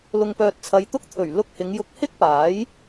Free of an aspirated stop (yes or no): no